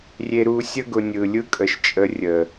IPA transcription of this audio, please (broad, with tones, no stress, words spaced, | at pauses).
rʲe˧ɾu˧sʲə˦ ɡʊ˧ nʲɯ˨lʲɯ˦kʼə˨ʃt͡ʃʼə˧ rʲə˨